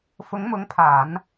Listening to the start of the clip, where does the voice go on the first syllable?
rising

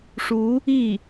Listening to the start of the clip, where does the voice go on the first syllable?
rising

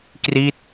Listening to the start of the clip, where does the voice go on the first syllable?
falling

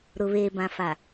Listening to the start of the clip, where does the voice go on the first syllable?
low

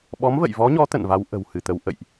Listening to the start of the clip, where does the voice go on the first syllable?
rising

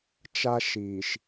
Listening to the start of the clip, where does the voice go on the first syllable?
high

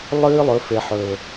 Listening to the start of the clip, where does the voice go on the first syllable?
high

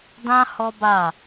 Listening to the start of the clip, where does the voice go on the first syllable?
high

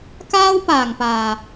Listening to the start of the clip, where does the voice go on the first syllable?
high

